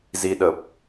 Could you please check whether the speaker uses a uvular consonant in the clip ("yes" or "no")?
no